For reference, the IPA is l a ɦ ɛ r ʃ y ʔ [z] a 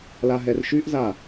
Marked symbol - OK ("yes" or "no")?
yes